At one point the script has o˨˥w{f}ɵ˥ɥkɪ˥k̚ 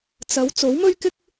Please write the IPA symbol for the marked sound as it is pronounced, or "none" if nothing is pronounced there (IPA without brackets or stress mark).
m